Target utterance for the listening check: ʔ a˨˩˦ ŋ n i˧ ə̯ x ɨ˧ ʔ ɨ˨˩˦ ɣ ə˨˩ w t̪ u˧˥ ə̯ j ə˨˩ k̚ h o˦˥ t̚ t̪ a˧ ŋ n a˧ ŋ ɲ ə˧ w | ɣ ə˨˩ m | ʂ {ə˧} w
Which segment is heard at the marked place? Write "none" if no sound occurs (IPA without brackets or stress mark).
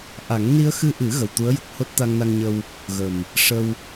ə˧